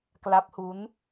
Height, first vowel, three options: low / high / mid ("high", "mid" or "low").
low